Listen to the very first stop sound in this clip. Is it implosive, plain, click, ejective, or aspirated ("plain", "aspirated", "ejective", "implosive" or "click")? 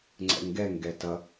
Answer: click